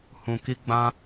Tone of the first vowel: low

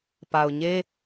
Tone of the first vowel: low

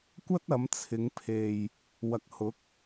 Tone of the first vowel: high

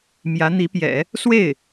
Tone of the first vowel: rising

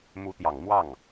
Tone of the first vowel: rising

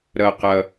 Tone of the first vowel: low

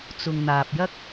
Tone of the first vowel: low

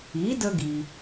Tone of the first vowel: rising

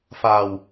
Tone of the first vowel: low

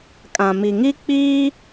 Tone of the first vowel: low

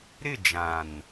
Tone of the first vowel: falling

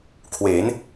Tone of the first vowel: rising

